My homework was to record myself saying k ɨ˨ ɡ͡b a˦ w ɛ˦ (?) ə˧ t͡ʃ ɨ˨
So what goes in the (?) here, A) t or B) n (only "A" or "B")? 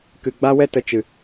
A